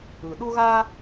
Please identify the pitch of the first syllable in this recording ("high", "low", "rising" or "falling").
low